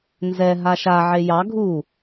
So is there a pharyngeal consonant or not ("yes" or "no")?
yes